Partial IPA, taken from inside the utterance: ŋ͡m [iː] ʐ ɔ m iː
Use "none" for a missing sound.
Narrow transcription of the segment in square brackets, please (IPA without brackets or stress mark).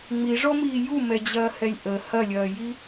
i